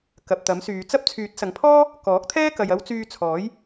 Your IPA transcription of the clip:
k ɐ˨ p̚ t̪ ɐ˨˥ m s yː˨˧ t͡s ɐ˥ p̚ t͡sʰ yː˨˥ t̚ s ɐ˨ ŋ pʰ ɔː˥ | k ɔː˨˥ k̚ t̪ʰ ɛː˥ k ɐ˨ j ɐ˨˧ w t͡s yː˧ t͡sʰ ɔː˨˥ j

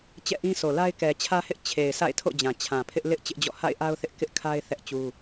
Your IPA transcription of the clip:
t͡ɕ ɛ̰˦˨ ʔ ĩ˦ s o˨ l a˦ ɪ̯ k ɛ˨ t͡ɕʰ ä˦ h ɪ˦ ʔ t͡ɕʰ e˨ ɪ̯ s a̰˦˨ ɪ̯ tʰ o̰˦˨ d͡ʑ ã˨ t͡ɕʰ ã˨ pʰ ɪ˦ ʔ l ɪ˦ ʔ t͡ɕ ɪ˦ ʔ d͡ʑ ɔ̰˦˨ h a̰˦˨ ɪ̯ ʔ a˦ ʊ̯ θ ɪ˦ ʔ k ɪ˦ ʔ kʰ a˦ ɪ̯ θ ɛ˦ ʔ t͡ɕ u˦

